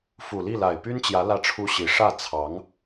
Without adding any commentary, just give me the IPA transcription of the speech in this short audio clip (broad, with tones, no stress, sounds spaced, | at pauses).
f u˨˩ l i˥˩ l a˨˩ ɪ̯ p y˥ n t͡ɕ j ä˧˥ l ä˥˩ ʈ͡ʂʰ u˥ ɕ i˧˥ ʂ ä˥˩ t͡sʰ ɑ˧˥ ŋ